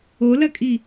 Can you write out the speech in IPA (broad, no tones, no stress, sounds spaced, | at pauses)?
o l ɐ kʼ i